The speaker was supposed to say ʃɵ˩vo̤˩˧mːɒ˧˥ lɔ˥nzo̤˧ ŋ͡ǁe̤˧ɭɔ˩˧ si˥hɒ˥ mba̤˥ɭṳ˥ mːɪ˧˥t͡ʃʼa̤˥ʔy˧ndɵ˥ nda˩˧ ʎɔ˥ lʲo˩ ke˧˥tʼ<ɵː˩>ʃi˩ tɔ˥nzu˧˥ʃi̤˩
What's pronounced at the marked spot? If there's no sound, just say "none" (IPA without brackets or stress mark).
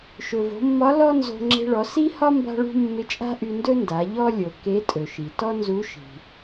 ɵ˩